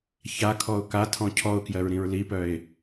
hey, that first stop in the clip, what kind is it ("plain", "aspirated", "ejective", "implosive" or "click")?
aspirated